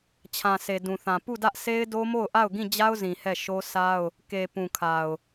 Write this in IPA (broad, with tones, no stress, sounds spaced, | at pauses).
t͡ɕʰ ã˨ s e˨ d ũ˨ θ ã˨ p u˦˨ d ä˦ ʔ s e˦ ɪ̯ d o˦ m o˦˨ ʊ̯ ʔ a˦˨ ʊ̯ ɡ ĩ˦˨ d͡ʑ a˦ ʊ̯ z ĩ˨ h ɛ˦˨ ʃ o˦ s a˦ ʊ̯ | k e˨ p ũ˨ kʰ a˨ ʊ̯